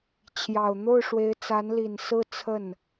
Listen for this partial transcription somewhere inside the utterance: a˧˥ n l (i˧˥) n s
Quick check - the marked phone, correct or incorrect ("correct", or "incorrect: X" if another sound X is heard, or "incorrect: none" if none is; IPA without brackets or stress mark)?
incorrect: i˨˩